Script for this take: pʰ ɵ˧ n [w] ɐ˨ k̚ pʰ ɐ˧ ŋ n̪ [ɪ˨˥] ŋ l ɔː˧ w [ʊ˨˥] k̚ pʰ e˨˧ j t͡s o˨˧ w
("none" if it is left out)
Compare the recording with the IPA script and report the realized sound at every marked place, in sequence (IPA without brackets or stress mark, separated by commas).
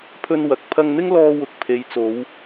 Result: w, ɪ˥, ʊ˨˥